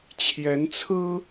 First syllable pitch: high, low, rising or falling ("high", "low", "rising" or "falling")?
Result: rising